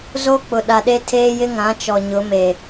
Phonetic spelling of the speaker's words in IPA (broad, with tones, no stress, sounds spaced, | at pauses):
z o˦ k͡p ʊ˨ ɗ a˨ ɗ e˦ tʰ eː˦ j ɪ˦ ŋ ã˨˦ t͡ʃ ɔ˨ ɲ ʊ˨˦ m e˨